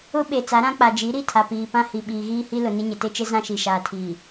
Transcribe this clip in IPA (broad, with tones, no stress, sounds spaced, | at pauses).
ʊ˦ ɓ e˨ t͡s a˨˦ ɾ ã˦ k͡p a˨ d͡ʒ i˨˦ ɾ i˦˨ tʰ a˨ p iː˨ p ã˦ h i˨ ɓ iː˨ ɣ iː˦ h i˦ l ʊ˨ n ɪ˦ ɲ ɪ˨ t e˦ t͡ʃ ɪ˦ z ã˦ ʃ i˨ ʃ aː˨ tʰ iː˨